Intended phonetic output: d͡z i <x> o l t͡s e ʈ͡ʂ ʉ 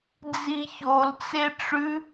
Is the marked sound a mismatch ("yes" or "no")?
yes